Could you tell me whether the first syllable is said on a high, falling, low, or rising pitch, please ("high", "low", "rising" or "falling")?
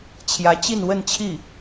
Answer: rising